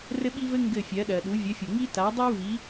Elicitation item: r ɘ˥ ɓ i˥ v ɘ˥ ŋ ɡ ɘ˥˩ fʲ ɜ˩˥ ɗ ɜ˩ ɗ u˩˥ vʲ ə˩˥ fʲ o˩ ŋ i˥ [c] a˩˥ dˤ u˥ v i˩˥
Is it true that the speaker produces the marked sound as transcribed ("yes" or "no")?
no